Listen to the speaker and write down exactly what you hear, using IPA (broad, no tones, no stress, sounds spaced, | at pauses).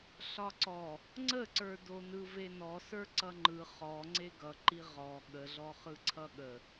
ɬ ɒ ǀ ɔ | ŋ͡ǀ ə ǀ ə˞ d o n ɯ v e n ɔ s ə˞ ǀ ʌ ŋ͡ǃ ɯ χ ɔ ŋ͡ǀ e ɡ ʌ ǃ i ʁ ɔ ɠ ə ɮ ɔ χ ɯ ǀʰ ʌ ɠ ə